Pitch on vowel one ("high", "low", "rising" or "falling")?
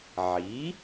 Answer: rising